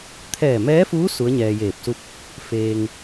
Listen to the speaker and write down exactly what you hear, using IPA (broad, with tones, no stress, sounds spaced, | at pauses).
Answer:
t̪ʰ ɛː˧˩ m ɛː˧˥ f uː˧˥ s u˧˥ ə̯ ɲ ɛː˧ j eː˧˩ p̚ s u˥˨ p̚ | f eː˧ ŋ